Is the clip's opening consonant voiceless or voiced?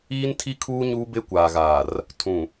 voiced